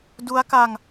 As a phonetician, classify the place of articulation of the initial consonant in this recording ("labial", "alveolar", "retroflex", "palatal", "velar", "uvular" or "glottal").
alveolar